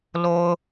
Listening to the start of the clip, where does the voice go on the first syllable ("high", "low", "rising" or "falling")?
low